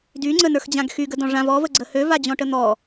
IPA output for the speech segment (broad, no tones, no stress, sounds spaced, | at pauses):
d y ŋ͡ǀ ə n ə˞ x d͡ʑ ã ɡ x y ɡ ə d ɔ̃ ʐ ã v ɔ v ə ɡ͡ǀ ə h ø v a d͡ʑ ɔ̃ ʈ ə n̪ ɔ